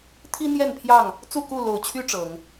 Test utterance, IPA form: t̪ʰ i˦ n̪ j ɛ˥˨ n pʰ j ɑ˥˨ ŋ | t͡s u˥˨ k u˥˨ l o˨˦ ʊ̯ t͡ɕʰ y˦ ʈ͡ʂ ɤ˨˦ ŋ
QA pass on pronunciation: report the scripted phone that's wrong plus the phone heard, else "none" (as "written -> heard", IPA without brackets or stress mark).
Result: none